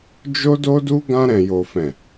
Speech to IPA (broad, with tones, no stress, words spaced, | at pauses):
d͡ʒo˦do˦du˦ ɡã˧ ɾɛ̃˨jo˨fɛ̃˨